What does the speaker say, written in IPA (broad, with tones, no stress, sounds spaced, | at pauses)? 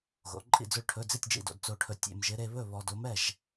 ɣ o̰˩˧ ǃʼ ḭ˥˨ d͡z ɵ˥˨ ɭ ʈʰ ɵ˧˥˧ d͡z i˥˨ tʲ d͡ʒ ḭ˥˨ d o̰˩˧ d t͡s o˧ ʈʰ ɵ˧ tʲ ḛ˧ m ʒ ɪ˧˥ ɾ e˧ β ɵ˥˨ β ɔ˧ d o˧˥ m ɛ˥˨ ʒ